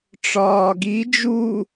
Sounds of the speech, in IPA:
ʈ͡ʂ ɒː ɡ i d͡ʒ u

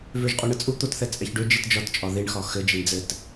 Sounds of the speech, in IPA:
v ø ʒ qʼ o ɳ ɘ t͡sʼ u t̪ o t θ ɛ t͡sʼ ɛ ç ɖ ø d͡ʒ i t d͡ʒ ɒ t t͡ʃʼ ɒ ð i ɳ x ɒ x ɘ d͡ʒ e ɳ d͡z ɘ t

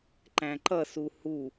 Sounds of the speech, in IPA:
ǃ æ̃ ǃ ʌ s u h u

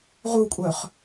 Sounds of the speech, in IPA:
ʁ u kʷʼ œ χ

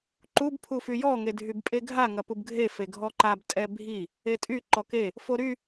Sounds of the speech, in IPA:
ǃ u b pʰ u f y j ɔ ŋ e dʱ y b pʼ e ɡʱ a ŋ ɐ p u b ɡʱ e f e ɡʱ ɔ ǃ a b tʼ ɛ bʱ i | e tʼ y ǃ ɔ k e | f o ɾ y

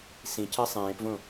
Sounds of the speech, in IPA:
s ĩ c əː sˤ ẽː p v õ

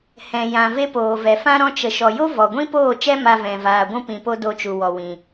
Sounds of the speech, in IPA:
h ɛ̃˨ j ã˨ v e˧ p oː˨ v ɛ˨ f ã˦ ɾ ɔ̃˧ t͡ʃ ə˨ ʃ ɔ˨ j o˦ v ɔ˨ ɡʷ ĩ˦ p oː˦˨ t͡ʃ ɛ˦ m a˧ v ɛ̃˨ v aː˨ ɡʷ ũ˦ p ĩ˨ p o˦ d o˧ t͡ʃ u˨ w ɔ˨ w ĩ˨

